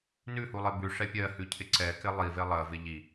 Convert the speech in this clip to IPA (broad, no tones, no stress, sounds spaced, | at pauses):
n ʉ h u lˠ e b ʉ ʂ ɛ pʲ ɜ h ʉ cʰ ɪ ǀ ɛ k ɪ lˠ i v e lˠ ɜ v ɪ ʎ i